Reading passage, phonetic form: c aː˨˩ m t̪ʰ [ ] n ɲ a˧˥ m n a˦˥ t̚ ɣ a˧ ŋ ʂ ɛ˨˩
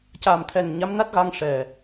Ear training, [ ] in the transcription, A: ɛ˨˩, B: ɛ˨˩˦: A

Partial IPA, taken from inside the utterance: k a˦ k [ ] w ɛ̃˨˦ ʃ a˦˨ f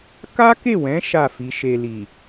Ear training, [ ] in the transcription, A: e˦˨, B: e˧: A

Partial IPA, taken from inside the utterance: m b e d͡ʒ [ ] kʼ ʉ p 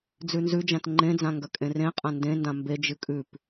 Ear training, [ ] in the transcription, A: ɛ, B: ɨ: B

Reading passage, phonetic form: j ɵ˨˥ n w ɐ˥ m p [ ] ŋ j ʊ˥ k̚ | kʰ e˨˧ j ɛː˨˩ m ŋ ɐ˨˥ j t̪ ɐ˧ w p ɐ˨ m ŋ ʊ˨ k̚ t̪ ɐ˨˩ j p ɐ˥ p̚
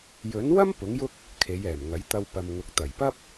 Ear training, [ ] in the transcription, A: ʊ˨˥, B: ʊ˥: A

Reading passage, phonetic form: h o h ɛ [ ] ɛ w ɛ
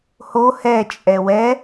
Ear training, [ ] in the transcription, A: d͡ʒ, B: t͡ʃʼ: B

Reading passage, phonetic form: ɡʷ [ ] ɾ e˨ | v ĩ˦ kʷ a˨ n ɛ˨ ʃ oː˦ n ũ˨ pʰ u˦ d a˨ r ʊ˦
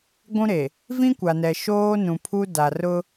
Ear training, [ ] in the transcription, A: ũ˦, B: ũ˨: A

